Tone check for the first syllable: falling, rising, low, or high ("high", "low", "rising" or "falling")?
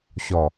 low